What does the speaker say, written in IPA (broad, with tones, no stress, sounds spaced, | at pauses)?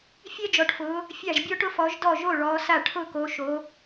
fʲ ɛ˦ d͡ʒ ɔ˨˦ ʈ f ʊː˨˦ | fʲ a˥˩ ʒ bʲ ɔ˦ ʈ ʊ˦ f ɔ˨˦ ʒ d ɔ˥˩ ʒ o˥˩ ɭ ɔː˨˦ s a˥˩ ʈʰ ʊ˥˩ k o˨˦ ʃ o˨˦